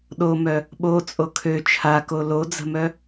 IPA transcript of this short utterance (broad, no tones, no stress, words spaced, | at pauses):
ɗomœ | ɓo t͡sʼokʰø t͡ʃʰako lod͡zə̤mœ